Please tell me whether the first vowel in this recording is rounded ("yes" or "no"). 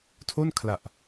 yes